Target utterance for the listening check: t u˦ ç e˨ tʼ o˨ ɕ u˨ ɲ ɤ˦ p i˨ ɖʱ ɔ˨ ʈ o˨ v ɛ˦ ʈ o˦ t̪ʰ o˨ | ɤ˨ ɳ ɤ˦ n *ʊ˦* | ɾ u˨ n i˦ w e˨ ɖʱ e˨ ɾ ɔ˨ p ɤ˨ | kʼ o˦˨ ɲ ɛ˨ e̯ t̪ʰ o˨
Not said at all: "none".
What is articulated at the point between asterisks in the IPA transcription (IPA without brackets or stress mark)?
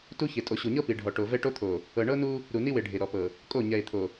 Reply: u˦